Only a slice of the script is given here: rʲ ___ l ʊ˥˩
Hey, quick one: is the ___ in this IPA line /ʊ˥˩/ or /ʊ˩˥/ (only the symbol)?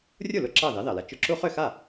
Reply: ʊ˥˩